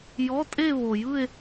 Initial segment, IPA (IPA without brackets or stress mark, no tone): j